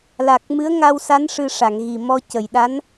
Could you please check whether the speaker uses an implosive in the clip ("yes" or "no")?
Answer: yes